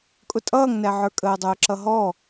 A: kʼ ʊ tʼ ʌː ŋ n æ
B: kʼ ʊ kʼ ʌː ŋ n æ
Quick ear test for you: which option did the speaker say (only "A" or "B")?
A